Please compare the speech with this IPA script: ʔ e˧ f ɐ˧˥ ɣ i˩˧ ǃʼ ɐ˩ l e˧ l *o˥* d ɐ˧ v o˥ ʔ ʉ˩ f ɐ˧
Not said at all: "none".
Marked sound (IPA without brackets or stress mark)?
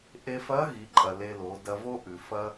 o˩˧